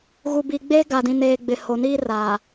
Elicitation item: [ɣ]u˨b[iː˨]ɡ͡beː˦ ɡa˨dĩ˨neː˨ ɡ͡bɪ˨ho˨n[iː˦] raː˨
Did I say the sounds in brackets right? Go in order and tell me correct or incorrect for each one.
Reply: correct, correct, correct

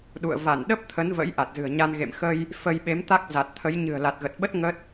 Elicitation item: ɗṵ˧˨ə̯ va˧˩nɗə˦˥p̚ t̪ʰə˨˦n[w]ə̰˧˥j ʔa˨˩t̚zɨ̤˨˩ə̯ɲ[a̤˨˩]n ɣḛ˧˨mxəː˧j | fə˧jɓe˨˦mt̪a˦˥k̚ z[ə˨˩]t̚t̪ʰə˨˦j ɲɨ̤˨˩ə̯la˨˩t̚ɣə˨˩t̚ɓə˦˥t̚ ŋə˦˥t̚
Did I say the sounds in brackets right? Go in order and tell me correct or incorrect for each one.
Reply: incorrect, incorrect, incorrect

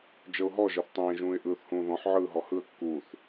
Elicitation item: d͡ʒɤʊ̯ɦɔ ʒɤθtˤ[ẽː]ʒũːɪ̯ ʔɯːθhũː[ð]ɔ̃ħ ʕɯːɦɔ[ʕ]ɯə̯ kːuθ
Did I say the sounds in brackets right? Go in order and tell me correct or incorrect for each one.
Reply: correct, correct, incorrect

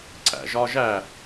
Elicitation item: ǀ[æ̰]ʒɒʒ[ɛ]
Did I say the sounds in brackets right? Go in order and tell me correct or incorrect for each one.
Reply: correct, incorrect

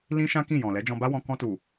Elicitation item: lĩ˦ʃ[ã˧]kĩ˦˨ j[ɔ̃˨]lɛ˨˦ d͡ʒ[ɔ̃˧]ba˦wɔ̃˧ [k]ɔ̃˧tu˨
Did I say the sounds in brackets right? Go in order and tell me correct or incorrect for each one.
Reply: incorrect, correct, correct, correct

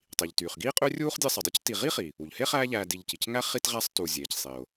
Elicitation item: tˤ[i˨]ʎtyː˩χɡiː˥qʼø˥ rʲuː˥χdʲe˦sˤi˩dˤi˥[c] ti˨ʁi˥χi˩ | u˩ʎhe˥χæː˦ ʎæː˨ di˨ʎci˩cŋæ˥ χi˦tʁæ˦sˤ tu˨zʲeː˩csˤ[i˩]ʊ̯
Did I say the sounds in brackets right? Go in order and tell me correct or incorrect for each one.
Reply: incorrect, correct, correct

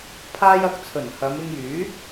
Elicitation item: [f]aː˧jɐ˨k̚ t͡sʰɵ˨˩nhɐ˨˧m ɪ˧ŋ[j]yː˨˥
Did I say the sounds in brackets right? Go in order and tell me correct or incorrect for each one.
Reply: incorrect, correct

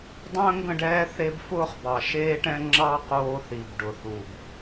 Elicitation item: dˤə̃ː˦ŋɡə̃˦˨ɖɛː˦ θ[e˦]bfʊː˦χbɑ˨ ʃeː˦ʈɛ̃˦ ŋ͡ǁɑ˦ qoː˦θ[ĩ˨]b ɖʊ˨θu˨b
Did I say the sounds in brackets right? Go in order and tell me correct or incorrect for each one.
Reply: correct, incorrect

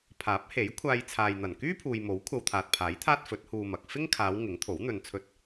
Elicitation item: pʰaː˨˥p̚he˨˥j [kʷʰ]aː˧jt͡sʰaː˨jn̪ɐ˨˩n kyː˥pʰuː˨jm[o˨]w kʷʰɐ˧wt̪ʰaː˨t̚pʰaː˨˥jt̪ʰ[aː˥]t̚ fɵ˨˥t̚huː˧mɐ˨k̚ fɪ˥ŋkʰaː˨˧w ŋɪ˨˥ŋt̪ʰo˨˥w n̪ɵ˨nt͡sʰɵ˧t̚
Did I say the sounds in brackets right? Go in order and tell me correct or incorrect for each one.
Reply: correct, incorrect, correct

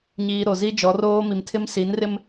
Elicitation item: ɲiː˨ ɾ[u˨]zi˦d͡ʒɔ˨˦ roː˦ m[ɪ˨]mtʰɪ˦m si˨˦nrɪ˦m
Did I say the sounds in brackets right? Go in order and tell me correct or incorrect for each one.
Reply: incorrect, incorrect

